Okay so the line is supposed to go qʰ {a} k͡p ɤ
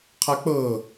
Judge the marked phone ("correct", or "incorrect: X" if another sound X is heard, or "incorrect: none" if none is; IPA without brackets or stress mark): correct